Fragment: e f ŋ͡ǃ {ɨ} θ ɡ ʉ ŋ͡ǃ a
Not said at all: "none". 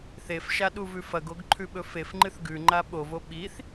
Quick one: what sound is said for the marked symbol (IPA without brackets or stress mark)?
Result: ɨ